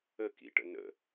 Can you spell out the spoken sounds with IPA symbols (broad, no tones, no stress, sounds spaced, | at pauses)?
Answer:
ə k ḭ ʈ ə̰ n ə̰